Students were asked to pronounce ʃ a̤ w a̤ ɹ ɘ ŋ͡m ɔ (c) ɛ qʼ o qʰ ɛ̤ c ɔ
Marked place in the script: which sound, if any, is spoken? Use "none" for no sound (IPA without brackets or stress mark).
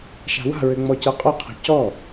c